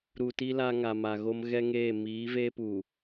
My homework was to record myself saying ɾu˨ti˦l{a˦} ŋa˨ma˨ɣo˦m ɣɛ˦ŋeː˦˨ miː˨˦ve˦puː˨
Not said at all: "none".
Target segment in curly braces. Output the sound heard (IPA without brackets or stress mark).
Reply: a˦